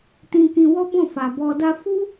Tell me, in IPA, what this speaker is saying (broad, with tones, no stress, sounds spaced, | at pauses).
t ĩ˧ k ĩ˧ w ɔ˦ b ɔ̃˦˨ f a˨ b ɔ˧ d a˧ f u˦